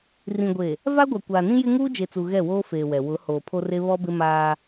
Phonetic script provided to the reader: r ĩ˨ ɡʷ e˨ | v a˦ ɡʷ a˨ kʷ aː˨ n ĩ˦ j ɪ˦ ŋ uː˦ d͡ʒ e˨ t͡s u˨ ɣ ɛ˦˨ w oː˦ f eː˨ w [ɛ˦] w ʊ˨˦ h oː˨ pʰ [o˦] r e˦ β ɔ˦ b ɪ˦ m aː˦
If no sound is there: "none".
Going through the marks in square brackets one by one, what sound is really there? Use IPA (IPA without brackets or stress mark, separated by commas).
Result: ɛ˨, o˦